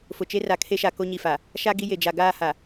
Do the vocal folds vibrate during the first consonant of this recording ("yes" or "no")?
no